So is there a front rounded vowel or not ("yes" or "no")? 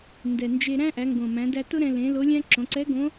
no